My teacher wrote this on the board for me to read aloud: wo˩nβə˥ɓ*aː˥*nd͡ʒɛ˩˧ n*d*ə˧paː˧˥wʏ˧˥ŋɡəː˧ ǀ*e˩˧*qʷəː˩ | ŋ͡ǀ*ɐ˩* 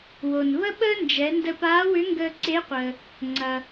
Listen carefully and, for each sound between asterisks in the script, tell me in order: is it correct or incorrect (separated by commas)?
incorrect, correct, incorrect, correct